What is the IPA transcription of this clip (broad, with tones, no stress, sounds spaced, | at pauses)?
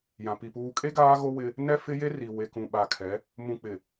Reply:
j ã˨ p i˨ p uː˨ kʼ e˦ ɡ aː˦ ɣ o˦ w ɪ˦ | n ɛ˦ f ɪ˦ j e˦ r i˨ w e˨ k ũ˨ ɓ a˨ kʰ ɛ˨˦ | m ũ˨ k͡p ɪ˨